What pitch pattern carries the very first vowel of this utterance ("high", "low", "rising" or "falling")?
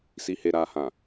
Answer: low